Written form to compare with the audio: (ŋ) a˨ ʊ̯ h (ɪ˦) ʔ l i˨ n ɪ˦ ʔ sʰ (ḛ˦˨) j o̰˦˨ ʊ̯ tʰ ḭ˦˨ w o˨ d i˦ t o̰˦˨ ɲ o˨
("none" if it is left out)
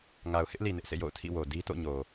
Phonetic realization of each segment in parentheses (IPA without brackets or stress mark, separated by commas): ŋ, ɪ˦, ḛ˦˨